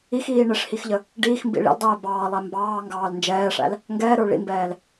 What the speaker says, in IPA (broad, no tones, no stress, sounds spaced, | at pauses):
i x iː ɳ ɪ ʂ h i x ʎ ə | ɖ iː x m b ḭ ɭ ḭ l dˤ ɛː b ɑː lˠ æ m b ɑː ŋ ɡ ɑː l n d͡ʒ ɛː ʂ æ̰ l | ŋ ɡ ɛː ɾ ə˞ ɭ ḭ m b ɛː l